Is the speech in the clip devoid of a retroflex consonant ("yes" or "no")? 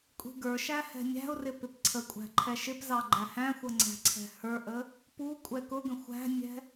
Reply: yes